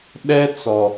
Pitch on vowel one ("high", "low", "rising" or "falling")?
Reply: high